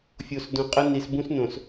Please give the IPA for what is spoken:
fʲo˨s dõ˨qʼə˦ni˨s bũ˦s nõ˨s

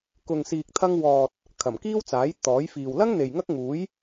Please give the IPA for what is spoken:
kʊ˨ŋsiː˨k̚t̪ʰɐ˧ŋwɔː˨t̚ | kʰɐ˨˩mkiː˥wt͡saː˨˥j t̪ɔː˨˥jfiː˨w lɐ˥ŋn̪e˨j ŋɐ˥k̚ŋuː˨˥j

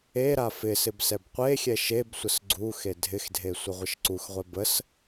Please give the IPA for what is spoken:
eɾa fɪsɪb sɛbqʷexʲɛ ʃeb sʷəsɡ͡ǀuxe dʱɪxdʱe sʷɪʁʷəʃǀuxʁʷɛ bəs

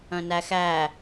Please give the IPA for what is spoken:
œ̃næxæ

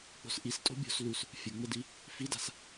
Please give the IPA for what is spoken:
k͡po̤sʔis tʼo̤bʲo̤s lus | fʲəŋ͡mədi | fida̤s

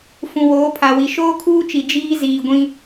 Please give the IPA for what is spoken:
fũ˨woː˨˦pʰa˨wi˨ ʃoː˦kʰuː˦t͡ʃi˨ d͡ʒiː˦ ziː˨ɡʷĩ˦

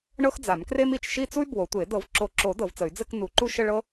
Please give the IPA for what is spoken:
ɳɤ˥xd͡za˨˩˦mkre˥mi˨˩˦t͡ʃ ʃi˥˧t͡su˥y̯ bwo˨˩˦tʷe˨˩˦ dɤ˨˩˦vǁo˨˩˦ ǁo˨˩˦ dɤ˨˩˦vt͡sə˨˩˦y̯ d͡zɘ˥˧k nu˨˩˦ǃu˥˧ʃə˥˧ ɭɤ˥

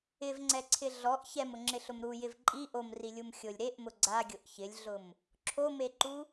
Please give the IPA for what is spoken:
ɪvŋ͡ǀɛǀʰɪ ɮɔʔ çɛmʊŋ͡ǁɪɬʊm ɾujɪv ǃʼi ʔomrilʲum xʲʊlʲ ɾeʔmʊ ɡ͡ǀaɡʲʊʔ çɪlʲɮʊm | ǁʰomeǃu

